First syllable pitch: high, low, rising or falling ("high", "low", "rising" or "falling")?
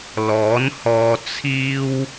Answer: rising